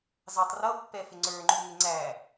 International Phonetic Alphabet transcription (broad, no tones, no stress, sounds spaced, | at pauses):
z ɑ tˤ r ʌ pː ɛ f ɪ ŋ͡ǀ ə˞ ŋ͡ǃ u ŋ ɪ ŋ͡ǀ æ